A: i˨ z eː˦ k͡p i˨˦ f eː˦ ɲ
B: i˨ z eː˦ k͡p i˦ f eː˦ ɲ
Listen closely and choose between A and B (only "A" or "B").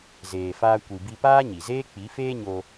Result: A